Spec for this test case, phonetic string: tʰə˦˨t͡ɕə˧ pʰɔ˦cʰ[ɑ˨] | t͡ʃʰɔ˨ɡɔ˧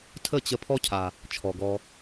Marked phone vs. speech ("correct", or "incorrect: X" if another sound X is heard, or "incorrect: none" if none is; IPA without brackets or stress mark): incorrect: a˨